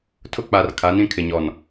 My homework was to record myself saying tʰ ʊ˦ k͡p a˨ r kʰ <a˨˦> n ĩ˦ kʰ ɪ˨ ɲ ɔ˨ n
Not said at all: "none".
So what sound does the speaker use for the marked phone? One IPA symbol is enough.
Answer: a˨˦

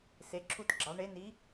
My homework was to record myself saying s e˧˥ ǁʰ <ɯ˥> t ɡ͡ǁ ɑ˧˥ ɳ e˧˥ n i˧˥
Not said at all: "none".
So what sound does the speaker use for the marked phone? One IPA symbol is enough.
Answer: u˥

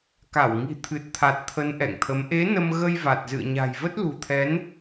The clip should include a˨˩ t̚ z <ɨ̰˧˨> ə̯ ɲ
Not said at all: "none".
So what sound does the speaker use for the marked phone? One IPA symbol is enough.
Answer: ɨ̰˧˨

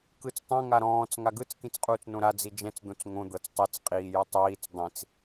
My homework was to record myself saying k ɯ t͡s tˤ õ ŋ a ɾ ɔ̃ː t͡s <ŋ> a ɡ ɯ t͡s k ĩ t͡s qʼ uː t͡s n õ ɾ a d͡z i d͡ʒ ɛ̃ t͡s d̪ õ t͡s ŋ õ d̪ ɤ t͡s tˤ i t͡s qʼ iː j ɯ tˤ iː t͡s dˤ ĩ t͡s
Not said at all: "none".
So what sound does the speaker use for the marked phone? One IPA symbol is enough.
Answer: ŋ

